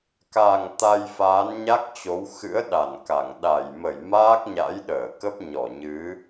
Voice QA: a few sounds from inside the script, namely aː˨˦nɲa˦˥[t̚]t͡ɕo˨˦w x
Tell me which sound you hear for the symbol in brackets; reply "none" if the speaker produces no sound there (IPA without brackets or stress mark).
k̚